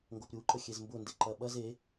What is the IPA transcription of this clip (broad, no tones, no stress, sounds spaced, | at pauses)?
ŋ ɡ o p ɾʲ u ǃ ə xʲ e z m b ʊ n d e ǃ ɐ ɓ ɐ z e